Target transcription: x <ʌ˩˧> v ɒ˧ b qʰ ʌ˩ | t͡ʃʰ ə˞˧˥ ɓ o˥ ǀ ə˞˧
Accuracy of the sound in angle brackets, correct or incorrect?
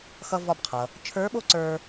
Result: incorrect: ʌ˧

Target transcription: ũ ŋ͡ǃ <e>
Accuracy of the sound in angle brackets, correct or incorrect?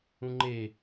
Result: correct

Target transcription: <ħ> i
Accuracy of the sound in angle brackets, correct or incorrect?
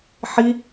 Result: correct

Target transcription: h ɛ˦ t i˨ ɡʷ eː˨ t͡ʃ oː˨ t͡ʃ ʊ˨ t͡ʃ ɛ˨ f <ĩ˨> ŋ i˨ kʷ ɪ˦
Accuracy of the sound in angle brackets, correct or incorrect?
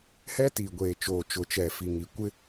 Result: incorrect: i˨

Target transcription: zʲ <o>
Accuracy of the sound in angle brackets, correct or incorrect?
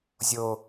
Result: correct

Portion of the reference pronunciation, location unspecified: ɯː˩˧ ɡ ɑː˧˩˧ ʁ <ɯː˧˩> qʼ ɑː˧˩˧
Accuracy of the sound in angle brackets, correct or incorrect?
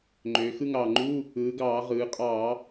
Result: incorrect: ɯː˩˧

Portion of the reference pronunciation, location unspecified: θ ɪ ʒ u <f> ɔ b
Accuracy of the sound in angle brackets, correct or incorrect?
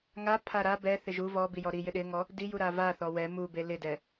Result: incorrect: v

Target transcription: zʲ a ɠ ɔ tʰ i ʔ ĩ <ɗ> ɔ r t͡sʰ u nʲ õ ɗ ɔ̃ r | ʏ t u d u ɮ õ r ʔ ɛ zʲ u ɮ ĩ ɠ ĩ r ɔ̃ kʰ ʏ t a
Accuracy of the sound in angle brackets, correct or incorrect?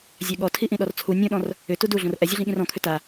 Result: correct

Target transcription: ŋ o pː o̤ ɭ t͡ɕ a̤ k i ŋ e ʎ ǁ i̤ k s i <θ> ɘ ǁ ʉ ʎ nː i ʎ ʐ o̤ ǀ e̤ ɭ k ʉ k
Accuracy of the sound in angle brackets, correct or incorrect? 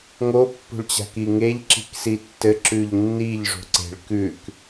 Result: incorrect: tː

